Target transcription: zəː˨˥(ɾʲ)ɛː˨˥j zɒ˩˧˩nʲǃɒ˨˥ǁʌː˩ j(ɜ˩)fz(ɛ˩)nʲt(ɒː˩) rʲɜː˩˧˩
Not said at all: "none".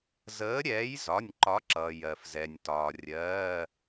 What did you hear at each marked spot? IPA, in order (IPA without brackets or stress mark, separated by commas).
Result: ɾʲ, ɜ˩, ɛ˩, ɒː˩